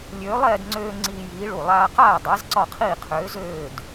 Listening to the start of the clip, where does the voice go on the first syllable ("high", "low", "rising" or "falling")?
rising